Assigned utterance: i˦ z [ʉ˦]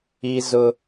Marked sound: incorrect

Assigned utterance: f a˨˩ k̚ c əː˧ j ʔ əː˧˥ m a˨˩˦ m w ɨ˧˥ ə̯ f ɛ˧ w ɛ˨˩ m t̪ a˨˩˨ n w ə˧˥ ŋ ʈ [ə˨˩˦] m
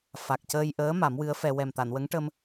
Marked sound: incorrect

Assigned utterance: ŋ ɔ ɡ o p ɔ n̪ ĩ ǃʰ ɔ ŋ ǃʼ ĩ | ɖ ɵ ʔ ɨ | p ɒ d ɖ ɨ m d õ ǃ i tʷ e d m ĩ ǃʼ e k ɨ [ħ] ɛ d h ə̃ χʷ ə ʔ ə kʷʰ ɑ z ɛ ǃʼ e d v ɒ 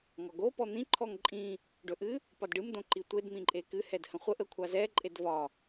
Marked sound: incorrect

